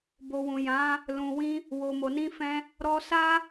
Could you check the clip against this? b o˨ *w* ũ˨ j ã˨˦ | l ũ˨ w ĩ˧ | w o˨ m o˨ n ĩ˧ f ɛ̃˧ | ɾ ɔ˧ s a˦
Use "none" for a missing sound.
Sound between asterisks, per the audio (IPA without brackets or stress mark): w